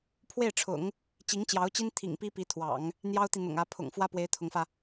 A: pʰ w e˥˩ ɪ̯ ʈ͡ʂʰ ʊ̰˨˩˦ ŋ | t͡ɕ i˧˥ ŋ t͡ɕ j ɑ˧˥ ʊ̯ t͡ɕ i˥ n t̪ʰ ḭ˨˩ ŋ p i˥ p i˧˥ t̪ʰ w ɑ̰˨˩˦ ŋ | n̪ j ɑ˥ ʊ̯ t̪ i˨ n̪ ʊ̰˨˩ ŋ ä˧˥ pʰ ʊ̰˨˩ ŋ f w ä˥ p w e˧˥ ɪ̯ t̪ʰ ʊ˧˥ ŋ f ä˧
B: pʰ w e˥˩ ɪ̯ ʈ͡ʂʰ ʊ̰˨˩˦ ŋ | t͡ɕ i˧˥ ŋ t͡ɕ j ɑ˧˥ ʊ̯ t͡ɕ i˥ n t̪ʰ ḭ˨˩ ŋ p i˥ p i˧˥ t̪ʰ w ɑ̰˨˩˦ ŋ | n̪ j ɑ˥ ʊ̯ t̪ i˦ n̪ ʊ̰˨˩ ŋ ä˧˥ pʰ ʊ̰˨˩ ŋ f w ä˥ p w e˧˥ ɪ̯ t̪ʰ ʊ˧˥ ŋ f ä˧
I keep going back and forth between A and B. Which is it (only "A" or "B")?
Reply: A